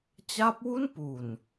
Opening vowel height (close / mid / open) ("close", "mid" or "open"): open